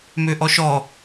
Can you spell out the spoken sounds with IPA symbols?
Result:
møʔɔʃɔ

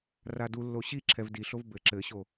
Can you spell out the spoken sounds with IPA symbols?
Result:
radulːo ɕi ǁʰɛvdiɬov bɘ ǁɘɕo

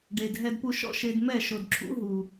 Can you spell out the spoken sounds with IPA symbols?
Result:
ɖe˨d ɦɛ˦dpu˦ʃɔ̰˦ ʃe˦d mɛ˦˨ʃo˨dǁʰṵ˨˦ ɦu˨

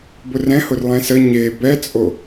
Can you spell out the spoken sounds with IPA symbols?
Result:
bʊrɛ̃hʊr lˠɛ̃sə ɲe bɛt͡sʼo

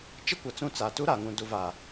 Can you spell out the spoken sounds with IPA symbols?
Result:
t͡ʃɪ˦kʷa˨ t͡sũ˦˨t͡sa˨ tu˦ɾa˨ŋũ˨ du˨va˨

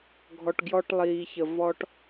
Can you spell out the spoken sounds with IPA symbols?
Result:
ɡʱɔ˧ʈɡjɔ˦ʈ lˠiː˨çə˨ vɔ˦ʈ

